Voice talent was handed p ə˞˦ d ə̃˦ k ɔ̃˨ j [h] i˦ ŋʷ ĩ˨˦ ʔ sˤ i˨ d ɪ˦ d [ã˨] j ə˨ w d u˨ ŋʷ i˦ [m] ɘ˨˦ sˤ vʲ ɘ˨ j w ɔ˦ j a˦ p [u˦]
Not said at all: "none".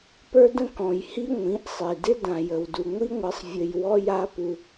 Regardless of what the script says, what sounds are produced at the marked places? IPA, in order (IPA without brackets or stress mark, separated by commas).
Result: h, ã˨, ŋʷ, u˦